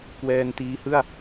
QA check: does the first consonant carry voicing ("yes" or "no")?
no